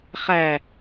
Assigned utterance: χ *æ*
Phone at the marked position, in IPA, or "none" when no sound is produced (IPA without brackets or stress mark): æ